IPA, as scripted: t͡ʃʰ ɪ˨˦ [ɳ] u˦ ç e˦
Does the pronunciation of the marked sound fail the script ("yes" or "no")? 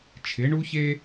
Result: no